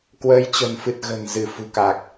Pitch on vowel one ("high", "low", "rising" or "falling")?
rising